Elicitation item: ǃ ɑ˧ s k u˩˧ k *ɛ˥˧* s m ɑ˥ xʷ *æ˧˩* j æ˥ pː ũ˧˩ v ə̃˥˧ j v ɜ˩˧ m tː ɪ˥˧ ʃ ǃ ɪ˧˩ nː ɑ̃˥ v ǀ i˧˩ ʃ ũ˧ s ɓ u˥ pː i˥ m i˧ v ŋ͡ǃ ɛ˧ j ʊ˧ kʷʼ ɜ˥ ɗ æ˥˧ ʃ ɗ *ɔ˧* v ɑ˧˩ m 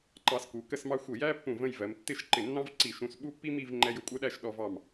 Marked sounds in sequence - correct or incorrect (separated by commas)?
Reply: incorrect, incorrect, correct